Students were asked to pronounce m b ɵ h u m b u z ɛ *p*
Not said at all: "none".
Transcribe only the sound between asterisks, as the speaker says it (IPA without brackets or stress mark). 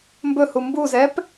p